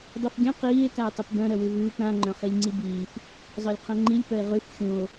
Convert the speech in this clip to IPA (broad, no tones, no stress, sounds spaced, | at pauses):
dˤ u f ɡʲ œ̃ q iː e̯ k a e̯ tˤ ʉ p b œ̃ ɾ œ w ʉ v ʉː p ɾ ã ŋ͡ǃ œ̃ χ i lʲ ŋ͡ǀ i b iː f | zˤ œ lʲ qʰ œ̃ ŋ͡ǃ i lʲ p œ e̯ ʁ ʉ f xʲ ũ o̯